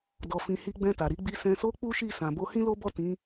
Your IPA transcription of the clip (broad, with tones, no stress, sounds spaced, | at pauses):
d ɔ˨ f ĩ˨ h i˧ ɡ͡b ɛ̃˧ t a˨ ɾ i˨˦ ɡ͡b i˧ s ɛ̃˨ s o˧ k͡p u˦ ʃ i˦˨ s ã˨ b o˧ h ĩ˦ l o˦ b ɔ˦˨ t ĩ˨˦